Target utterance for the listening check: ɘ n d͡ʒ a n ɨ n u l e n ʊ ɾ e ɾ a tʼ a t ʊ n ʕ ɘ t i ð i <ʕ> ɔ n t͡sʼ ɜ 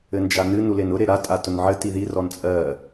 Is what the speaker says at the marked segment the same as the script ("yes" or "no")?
no